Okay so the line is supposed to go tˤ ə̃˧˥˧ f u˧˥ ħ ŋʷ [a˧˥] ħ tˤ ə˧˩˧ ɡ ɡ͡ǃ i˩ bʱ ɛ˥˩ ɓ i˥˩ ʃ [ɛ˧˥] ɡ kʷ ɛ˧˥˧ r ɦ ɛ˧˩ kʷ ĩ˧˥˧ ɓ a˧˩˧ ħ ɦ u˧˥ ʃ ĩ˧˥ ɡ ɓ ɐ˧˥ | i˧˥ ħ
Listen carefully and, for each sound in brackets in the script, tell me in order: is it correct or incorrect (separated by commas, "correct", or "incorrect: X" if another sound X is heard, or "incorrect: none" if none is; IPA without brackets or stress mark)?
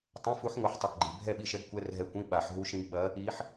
correct, correct